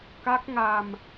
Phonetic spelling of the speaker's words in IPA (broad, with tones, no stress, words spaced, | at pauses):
ka˦˥k̚ŋa˧m